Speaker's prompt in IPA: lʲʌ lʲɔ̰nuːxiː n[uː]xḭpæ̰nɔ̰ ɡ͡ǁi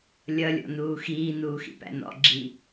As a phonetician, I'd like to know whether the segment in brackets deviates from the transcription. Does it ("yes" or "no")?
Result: no